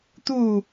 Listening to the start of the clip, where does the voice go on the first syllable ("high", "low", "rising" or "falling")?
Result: falling